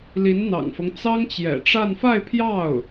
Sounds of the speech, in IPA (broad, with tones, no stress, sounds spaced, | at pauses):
l i˧˥ n n̪ ɑ̰˨˩ ŋ f ɤ˦ ŋ t͡s ɑ˥ ŋ t͡ɕ j ɛ̰˨˩ ʈ͡ʂ a˥˧ n f a˥˧ ɪ̯ pʰ j ɑ˥˩ ʊ̯